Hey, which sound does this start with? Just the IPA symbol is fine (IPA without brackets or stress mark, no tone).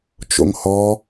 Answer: t͡ʃ